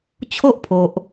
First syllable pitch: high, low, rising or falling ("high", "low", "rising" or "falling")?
high